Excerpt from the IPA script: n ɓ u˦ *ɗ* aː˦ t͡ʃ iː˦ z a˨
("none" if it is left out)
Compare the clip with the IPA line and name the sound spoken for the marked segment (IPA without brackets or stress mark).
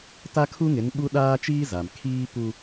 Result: ɗ